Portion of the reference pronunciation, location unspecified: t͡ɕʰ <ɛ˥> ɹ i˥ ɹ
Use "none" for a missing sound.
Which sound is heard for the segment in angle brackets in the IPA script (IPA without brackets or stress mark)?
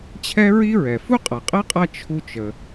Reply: ɛ˥